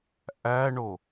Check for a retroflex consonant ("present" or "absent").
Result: present